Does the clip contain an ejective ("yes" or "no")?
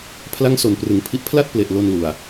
no